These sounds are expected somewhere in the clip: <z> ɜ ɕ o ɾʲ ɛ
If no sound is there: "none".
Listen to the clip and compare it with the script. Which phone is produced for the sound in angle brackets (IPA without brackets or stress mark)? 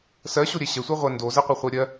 s